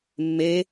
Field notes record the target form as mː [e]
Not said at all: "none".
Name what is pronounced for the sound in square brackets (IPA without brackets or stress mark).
e